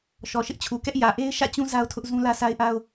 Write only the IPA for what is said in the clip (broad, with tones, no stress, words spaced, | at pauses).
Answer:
ʃɔ˨ʃɪ˦ʔt͡ɕʰu˨kɛ˦ʔ jä˨ʔe˦ɪ̯ ʃä̰˦˨t͡ɕũ˦ za˦ʊ̯tʰʊ˦ʔ zũ˦lä˦sʰa˦ɪ̯ʔa˦ʊ̯